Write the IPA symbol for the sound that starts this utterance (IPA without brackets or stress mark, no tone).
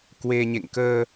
k